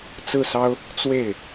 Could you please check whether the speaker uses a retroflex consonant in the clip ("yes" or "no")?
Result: no